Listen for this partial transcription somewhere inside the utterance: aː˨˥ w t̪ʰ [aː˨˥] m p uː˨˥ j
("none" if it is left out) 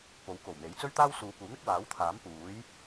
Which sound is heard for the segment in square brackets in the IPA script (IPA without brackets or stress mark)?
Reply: aː˨˥